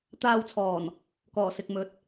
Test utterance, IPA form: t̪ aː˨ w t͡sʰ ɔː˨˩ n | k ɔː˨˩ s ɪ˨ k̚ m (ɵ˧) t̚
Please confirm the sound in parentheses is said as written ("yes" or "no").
no